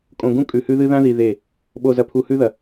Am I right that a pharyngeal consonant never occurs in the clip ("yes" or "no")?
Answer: yes